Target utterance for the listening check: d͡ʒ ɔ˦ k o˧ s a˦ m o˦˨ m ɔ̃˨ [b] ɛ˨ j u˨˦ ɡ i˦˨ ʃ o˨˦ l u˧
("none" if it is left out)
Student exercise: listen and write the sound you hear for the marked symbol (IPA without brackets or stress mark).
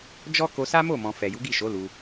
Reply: f